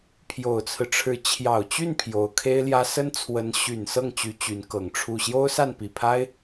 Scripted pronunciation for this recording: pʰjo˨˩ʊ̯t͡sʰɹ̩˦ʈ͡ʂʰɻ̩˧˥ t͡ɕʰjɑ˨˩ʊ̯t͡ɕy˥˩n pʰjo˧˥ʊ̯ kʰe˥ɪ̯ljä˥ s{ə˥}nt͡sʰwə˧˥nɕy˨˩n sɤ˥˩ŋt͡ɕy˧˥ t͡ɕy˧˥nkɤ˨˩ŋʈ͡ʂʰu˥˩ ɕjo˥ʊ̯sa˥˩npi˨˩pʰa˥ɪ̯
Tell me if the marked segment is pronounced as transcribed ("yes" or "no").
yes